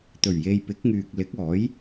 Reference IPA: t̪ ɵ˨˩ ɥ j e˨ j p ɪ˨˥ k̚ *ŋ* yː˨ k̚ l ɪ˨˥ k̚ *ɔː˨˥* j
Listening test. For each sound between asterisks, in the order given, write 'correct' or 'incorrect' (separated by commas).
correct, correct